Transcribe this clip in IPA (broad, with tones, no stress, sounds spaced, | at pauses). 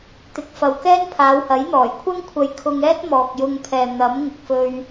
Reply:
t̪ ɪ˨˥ k̚ f ɐ˨ w k ɛː˥ n pʰ aː˨˧ w h ɐ˨˥ j n̪ ɔː˨˩ j kʷʰ ɐ˥ ŋ kʷʰ ɐ˧ j kʰ ʊ˧ ŋ ɛː˥ t̚ m ɔː˨ k̚ j ʊ˧ ŋ pʰ ɛː˨ n̪ ɐ˨˥ m ŋ ʊ˨ k̚ f ɵ˧ ɥ